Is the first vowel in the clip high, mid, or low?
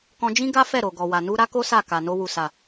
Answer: mid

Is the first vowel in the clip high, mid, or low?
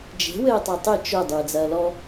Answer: mid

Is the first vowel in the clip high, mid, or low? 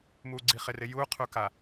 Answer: high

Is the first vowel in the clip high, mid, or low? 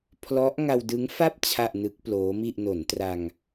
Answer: mid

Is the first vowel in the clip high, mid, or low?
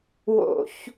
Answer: mid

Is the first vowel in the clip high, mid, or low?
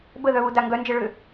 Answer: mid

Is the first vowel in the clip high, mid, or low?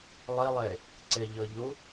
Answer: high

